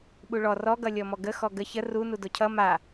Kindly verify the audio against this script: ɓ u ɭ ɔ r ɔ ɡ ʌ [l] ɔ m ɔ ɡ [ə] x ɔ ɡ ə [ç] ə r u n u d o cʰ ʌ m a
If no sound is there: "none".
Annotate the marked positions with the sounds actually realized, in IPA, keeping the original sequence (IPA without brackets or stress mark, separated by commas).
lʲ, ə, ç